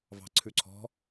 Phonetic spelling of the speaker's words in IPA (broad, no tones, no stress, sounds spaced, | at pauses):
v ɑ̤ ǀʰ ʉ ǀʰ ɔ̤